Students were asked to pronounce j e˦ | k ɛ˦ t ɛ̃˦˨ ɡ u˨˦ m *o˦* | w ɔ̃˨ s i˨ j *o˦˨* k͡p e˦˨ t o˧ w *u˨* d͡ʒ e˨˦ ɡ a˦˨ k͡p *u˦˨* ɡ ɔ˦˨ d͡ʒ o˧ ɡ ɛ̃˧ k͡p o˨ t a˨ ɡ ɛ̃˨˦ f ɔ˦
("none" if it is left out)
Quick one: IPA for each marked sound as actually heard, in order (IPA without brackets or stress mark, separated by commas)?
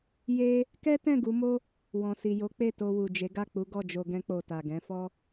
o˦, o˨˦, u˨, u˨˦